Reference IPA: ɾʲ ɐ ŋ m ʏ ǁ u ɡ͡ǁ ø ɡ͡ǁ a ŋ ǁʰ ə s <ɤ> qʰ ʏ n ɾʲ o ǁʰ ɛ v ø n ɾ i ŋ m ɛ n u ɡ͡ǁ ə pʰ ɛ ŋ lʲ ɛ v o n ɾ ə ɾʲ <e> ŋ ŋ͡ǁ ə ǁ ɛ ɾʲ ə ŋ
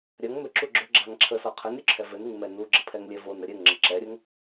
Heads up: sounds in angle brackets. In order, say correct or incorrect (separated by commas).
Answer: incorrect, incorrect